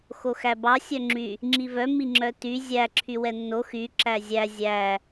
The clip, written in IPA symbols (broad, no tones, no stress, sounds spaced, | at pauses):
x o x æ b ɑ sʲ œ ŋ͡ǁ y | ŋ͡ǁ i v œ m i ŋ͡ǁ œ t y zʲ æ ǁʰ y w ɛ nː o x y ǁ æ zʲ æ zʲ æ